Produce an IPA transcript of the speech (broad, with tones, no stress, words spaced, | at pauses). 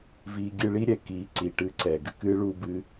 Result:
viː˧ ɡʲɨ˧ɭi˦ ɾʲɛ˨ kiː˨˦ǀiː˨ʈɨː˧ ǀɛː˨ɡɨ˧ kɨː˦ ɭuː˦bɨ˦